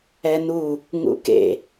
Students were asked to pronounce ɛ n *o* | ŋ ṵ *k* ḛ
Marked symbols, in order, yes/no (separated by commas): no, yes